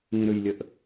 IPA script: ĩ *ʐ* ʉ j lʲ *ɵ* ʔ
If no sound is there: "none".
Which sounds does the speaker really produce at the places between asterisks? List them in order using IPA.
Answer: ɾ, ə

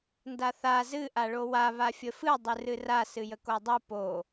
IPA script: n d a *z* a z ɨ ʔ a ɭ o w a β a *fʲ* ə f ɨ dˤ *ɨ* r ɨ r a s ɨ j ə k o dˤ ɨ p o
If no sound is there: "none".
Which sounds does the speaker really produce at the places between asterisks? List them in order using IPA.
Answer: θ, fʲ, ɨ

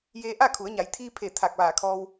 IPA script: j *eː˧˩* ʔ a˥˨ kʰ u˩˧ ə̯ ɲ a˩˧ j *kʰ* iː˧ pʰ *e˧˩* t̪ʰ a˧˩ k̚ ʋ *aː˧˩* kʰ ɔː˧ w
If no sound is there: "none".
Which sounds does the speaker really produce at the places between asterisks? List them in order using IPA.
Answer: eː˧, t̪ʰ, e˧˩, aː˧˩

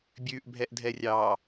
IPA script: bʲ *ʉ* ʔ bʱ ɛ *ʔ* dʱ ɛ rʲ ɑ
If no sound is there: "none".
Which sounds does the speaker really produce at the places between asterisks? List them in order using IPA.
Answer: ʉ, ʔ

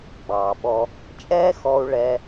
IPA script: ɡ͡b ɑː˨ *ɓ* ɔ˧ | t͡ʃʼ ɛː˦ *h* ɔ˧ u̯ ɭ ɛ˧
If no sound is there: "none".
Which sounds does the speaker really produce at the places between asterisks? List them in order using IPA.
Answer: ɓ, x

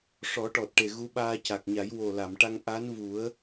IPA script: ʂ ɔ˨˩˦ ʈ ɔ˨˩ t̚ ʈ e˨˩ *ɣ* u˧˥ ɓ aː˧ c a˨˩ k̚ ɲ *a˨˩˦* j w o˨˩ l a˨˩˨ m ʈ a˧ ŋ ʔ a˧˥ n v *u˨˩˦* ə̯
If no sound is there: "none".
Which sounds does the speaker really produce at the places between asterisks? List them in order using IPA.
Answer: ɣ, a˨˩˦, u˨˩˦

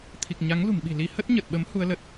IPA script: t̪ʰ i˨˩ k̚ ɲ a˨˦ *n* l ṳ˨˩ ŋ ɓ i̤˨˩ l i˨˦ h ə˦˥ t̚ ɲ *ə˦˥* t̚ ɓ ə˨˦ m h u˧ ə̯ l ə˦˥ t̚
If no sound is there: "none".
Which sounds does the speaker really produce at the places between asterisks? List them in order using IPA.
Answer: ŋ, ə˨˩

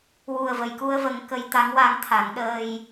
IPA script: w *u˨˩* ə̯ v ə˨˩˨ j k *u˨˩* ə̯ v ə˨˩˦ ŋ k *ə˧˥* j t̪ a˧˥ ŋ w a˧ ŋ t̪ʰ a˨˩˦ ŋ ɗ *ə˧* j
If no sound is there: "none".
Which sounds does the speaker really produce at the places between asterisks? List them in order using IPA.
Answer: u˨˩, u˧, ə˧˥, əː˧

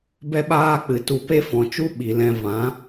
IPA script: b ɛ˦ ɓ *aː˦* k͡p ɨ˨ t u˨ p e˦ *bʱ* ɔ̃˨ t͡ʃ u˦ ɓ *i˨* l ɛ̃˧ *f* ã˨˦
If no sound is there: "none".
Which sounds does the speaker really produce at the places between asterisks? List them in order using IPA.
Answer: aː˦, f, i˨, v

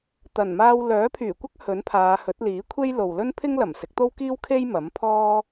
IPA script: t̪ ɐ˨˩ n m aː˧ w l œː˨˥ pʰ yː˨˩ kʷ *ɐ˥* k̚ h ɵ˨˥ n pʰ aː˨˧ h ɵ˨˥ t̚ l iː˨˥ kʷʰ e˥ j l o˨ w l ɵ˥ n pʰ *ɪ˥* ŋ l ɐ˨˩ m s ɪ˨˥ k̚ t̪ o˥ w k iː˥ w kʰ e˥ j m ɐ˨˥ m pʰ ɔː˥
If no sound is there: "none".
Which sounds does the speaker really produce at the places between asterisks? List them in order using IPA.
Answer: ɐ˥, ɪ˥

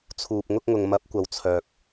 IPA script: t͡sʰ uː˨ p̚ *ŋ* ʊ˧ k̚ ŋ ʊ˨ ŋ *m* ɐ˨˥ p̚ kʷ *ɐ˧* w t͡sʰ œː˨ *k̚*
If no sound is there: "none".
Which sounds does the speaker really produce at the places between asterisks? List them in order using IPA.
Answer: ŋ, m, ɐ˨, k̚

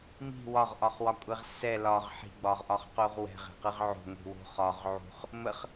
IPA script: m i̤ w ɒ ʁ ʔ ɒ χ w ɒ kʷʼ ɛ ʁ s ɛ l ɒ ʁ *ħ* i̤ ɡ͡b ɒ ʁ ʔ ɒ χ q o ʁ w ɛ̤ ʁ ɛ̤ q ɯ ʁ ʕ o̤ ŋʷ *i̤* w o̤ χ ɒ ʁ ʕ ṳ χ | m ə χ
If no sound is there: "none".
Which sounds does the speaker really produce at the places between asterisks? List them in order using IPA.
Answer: ħ, i̤

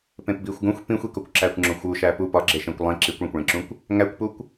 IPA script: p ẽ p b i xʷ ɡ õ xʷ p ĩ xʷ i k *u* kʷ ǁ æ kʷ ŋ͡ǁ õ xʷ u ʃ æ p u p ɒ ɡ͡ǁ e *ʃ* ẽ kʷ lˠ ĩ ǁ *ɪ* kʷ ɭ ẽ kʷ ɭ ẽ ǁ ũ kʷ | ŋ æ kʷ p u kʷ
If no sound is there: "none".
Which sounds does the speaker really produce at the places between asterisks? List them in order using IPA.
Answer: o, ʃ, i

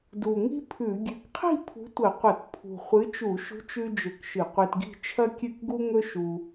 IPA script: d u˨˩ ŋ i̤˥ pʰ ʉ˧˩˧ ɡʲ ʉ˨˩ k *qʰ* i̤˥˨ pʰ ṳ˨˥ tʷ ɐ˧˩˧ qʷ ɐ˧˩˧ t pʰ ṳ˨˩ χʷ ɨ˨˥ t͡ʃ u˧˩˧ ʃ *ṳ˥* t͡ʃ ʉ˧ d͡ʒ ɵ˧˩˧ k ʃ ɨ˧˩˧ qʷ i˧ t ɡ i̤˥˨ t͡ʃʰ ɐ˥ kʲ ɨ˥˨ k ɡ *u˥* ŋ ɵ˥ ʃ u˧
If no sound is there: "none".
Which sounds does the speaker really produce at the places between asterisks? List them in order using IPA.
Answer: qʰ, ṳ˨˥, u˥

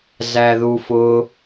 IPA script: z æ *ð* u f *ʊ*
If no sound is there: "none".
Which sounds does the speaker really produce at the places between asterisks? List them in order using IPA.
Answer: ð, ʊ

